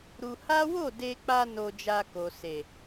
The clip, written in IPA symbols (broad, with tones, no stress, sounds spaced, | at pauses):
ɾ u˧ h a˦ w o˦˨ d e˧ k͡p a˧ n o˧ d͡ʒ a˧ k o˨ s e˨